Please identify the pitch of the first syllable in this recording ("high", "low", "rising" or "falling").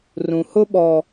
low